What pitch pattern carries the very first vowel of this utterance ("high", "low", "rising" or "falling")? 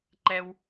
high